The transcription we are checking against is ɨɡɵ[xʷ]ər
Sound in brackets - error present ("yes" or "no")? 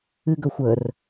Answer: no